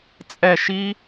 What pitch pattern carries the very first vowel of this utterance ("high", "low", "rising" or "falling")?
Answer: falling